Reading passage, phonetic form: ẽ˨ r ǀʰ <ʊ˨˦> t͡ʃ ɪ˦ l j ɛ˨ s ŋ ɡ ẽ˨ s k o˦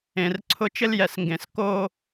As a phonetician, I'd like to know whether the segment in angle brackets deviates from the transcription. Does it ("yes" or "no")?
yes